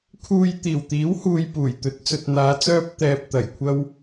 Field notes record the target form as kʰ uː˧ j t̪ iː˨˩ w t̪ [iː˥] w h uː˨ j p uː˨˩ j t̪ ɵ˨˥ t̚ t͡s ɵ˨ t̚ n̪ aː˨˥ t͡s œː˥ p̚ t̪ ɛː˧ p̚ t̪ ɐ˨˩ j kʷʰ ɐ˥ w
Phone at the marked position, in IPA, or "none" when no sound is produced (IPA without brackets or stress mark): iː˨˥